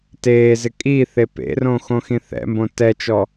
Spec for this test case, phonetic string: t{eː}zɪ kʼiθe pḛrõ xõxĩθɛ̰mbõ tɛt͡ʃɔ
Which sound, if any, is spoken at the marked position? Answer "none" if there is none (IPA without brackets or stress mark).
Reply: eː